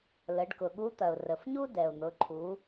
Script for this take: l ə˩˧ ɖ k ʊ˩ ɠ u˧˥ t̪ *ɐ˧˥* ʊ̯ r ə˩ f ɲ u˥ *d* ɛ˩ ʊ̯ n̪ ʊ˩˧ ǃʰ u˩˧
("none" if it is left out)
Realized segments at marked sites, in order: ɐ˩, d

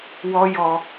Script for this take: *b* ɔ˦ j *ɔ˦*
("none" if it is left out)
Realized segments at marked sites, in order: w, ɔ˦

